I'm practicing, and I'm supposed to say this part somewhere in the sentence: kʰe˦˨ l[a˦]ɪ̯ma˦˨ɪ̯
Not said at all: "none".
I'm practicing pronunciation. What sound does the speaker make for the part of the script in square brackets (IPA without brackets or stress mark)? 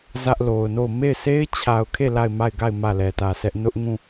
a˦˨